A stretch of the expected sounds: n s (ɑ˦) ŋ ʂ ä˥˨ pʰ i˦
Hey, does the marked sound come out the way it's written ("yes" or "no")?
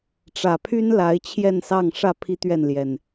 no